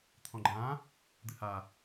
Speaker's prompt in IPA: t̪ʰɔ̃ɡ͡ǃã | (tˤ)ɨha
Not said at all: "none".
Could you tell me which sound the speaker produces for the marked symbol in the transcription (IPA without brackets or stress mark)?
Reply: d̪